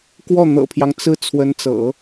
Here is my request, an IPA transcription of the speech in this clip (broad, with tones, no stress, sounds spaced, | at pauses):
k w ɔ˥˩ n̪ ɤ̰˨˩ pʰ j ɑ˦ ŋ t͡s ɹ̩˥ t͡sʰ w ə˧˥ n t͡s ɤ̰˨˩˦